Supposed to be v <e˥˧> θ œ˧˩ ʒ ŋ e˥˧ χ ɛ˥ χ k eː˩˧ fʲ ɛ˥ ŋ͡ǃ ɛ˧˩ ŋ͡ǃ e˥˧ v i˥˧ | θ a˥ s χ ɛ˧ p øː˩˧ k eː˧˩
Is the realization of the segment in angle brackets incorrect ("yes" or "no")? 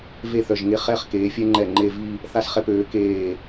no